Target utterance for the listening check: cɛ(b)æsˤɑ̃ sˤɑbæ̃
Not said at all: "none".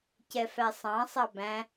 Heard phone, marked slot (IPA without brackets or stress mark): f